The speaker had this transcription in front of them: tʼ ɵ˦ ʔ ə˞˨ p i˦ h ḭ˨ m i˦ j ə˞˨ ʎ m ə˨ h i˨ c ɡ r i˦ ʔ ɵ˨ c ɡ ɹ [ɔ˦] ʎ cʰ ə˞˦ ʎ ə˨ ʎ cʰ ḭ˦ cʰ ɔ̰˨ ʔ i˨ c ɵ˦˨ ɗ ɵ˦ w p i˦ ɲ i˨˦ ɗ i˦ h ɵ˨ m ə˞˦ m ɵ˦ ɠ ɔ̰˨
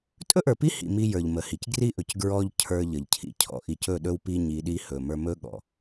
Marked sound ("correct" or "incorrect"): correct